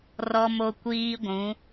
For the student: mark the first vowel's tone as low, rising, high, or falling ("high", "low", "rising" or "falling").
high